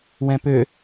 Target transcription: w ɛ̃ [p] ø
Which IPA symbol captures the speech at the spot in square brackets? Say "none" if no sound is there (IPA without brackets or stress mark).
p